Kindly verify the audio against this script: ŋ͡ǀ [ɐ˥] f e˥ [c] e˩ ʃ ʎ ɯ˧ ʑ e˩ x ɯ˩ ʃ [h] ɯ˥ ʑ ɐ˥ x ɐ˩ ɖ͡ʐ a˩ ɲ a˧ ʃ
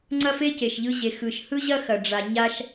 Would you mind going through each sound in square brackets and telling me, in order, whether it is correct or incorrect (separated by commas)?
correct, correct, correct